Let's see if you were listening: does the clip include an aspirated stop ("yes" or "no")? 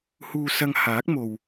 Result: no